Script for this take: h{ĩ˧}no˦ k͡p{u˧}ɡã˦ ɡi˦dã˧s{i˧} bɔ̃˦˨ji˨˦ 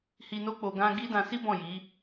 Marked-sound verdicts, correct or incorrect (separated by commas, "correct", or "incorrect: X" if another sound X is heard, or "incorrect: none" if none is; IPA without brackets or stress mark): incorrect: i˧, incorrect: o˧, incorrect: i˦